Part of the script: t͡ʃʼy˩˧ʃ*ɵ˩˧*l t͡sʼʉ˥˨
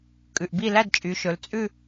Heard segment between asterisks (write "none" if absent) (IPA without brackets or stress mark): ɵ˩˧